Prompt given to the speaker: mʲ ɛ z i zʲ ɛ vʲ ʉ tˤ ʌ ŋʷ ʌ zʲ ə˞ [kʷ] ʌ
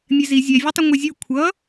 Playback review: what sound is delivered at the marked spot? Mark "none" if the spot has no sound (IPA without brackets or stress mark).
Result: kʷʰ